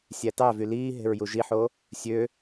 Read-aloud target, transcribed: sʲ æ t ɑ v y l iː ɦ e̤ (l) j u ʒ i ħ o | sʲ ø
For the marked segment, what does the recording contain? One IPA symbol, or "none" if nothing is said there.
ɹ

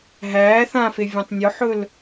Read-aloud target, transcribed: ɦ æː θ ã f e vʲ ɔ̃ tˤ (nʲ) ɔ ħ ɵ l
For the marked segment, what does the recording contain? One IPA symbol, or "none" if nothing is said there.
nʲ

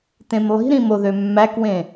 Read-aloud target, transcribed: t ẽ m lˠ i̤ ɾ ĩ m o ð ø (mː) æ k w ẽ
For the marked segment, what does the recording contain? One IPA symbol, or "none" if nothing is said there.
mː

